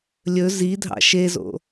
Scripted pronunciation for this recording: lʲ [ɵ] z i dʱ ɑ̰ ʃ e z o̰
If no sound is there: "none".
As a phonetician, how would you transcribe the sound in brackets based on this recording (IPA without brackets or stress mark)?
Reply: ɵ